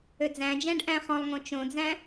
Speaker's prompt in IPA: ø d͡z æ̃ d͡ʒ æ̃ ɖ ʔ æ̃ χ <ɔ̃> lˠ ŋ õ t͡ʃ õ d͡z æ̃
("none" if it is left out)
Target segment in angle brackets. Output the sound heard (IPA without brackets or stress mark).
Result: ɔ̃